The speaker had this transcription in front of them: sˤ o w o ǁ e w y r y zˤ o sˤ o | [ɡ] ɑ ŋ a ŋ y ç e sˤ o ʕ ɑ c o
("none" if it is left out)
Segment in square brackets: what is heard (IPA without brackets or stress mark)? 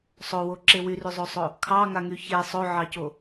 kʰ